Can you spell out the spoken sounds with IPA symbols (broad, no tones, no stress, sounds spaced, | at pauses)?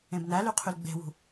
ẽ b n æ l y qʰ y l ɡ͡b e̤ w ṳ